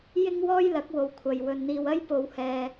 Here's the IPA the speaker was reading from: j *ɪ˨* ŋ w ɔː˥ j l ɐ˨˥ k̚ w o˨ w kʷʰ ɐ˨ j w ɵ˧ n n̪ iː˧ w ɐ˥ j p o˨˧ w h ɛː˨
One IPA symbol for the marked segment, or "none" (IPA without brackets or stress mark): ɪ˥